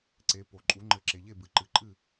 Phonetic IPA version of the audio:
ǀ e˩˥ p o˩ ǃʼ u˩˥ ŋ͡ǃ ɘ˩˥ ǁ e˩ ʎ e˥˩ b ɨ˩ ǃ ɨ˩ ǃʼ ɨ˥˩

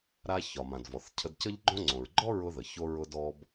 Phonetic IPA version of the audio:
ɾ a˧ ç ɒ˩ m ã˩ d v ɔ˩ θ cʰ ə˧ d c ə˥ ʎ ɡ͡ǃ õ˥ ŋ͡ǀ õ˩ ɹ ɡ͡ǃ ɔ˥ ɹ ʊ˧ ð ə˩ ç o˧ ɹ ʊ˧ d ɔ˧ b

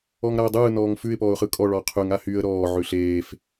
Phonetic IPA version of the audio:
ɔ ŋ ɾ a ə̯ dˤ ɯː n ɔː ŋ f ʉ ɪ̯ p ɔː ʊ̯ χ ɯ kʼ ɔ ɭ ɔ qʰ ʉ ŋ a h y ə̯ ɾ ɔː ʕ ʉ ɬ eː f

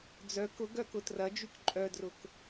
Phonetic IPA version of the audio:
d͡z œ k ʊ ɡ œ k ʊ t r ɐ d͡ʒ y k ǃʼ œ d r ʊ k

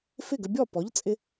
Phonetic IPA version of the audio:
f ɪ˥˩ ɡ ə˧ bʲ ɔ˥˩ p ɔ˩˥ ʎ t͡sʼ ɪ˧

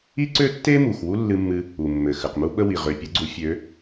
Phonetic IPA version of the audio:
i˥ ǀ ø˥ tː e˥ m u˨ x w u˥ lː ɨ˥ mː ɨ˥ | u˨ mː ɘ˨ x ɘ˨ q m u˥ ɓ ə˥ w i˨ ʁ ø˨ pʲ ə˧˥ ɡ͡ǀ u˧˥ fʲ ø˧˥

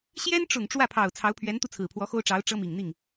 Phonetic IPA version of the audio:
ɕ j ɛ˥ n ʈ͡ʂ ʊ˨˩ ŋ ʈ͡ʂ w ä˥˩ pʰ ɑ˨˩ ʊ̯ t͡sʰ ɑ˧˥ ʊ̯ pʰ ɥ ɛ˧˥ n t̪ u˧ t͡sʰ ɹ̩˨˩ pʰ w ɔ˧˥ x o˥ ʊ̯ ʈ͡ʂ ɑ˧˥ ʊ̯ ʈ͡ʂ ɤ˥ m i˨˩ ŋ n̪ i˥˩ ŋ

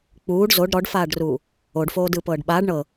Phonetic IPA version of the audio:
k͡p uː ɖ z o ɖ ɾ ɔ ɖ f aː ɖ r uː | o ɖ f oː d ɯː p ɤː ɖ ɓ aː ɖ ɳ ɤ

